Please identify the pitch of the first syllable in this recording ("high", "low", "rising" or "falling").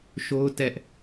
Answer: high